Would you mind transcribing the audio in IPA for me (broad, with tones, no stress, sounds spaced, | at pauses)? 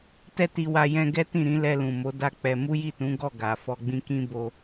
t ɛ˧ t i˨ w a˨ j ɛ̃˧ ɡ ɛ˦ t ĩ˦˨ ɾ ĩ˨˦ l ɛ˧ l ũ˨ m o˨˦ d a˦ k͡p ɛ˧ m u˦ j i˦˨ t ũ˨˦ ɡ ɔ˦˨ ɡ a˨ f ɔ˧ ɡ͡b ĩ˦ k ĩ˦ b o˧